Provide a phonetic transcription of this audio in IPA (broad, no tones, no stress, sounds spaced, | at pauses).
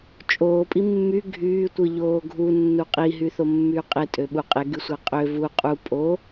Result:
t͡ʃʼ oː pʼ i mː y ɡʱ yː tʷ ɯ ʎ oː ɡʱ u nː u qʼ i ɦ y θ o mː yː qʼ e tʼ ø ɓ u qʼ e ɡ y sʷ æ qʼ ø v u qʼ u pʼ o